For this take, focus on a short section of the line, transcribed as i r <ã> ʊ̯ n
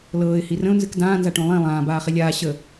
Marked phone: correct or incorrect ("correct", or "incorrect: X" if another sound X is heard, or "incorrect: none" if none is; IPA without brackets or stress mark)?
incorrect: ə̃